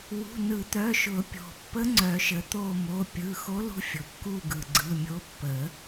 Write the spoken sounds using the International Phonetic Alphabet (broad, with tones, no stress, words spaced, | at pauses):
wṳ˩˧˩nɯ˨˩˦t̪œ˩˧˩ʃʊ˨˩˦ pʲo̤˩pːə˧˥ ŋ͡ǀœ˨˩˦ʃə˩t̪o˦˨mo˩˧˩ pʲɯ˩˧˩xo˧˥lṳ˧˥ fʲʊ˩kːu˦˨ ɡɯ˩ɡ͡ǀɯ˩˧˩mʲo˧˥ pːə˨˩˦